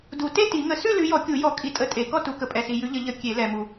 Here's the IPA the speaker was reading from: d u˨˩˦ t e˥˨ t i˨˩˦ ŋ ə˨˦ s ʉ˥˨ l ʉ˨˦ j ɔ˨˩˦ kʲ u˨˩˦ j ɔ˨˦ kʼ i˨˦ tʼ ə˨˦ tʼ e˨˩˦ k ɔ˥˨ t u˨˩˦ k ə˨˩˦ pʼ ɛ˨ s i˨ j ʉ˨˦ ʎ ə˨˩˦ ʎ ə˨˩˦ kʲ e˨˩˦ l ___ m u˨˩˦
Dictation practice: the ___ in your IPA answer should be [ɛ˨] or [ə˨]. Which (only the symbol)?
ɛ˨